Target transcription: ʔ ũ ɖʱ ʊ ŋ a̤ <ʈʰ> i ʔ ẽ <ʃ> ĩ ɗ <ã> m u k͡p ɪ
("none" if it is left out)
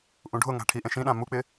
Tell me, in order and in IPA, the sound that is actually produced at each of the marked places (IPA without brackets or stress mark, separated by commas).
ʈʰ, ʃ, ã